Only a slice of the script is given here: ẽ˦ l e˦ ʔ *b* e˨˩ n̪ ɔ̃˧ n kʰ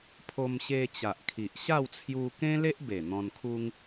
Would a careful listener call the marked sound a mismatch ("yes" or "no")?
no